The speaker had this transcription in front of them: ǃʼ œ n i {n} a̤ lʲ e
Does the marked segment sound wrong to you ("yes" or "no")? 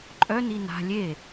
no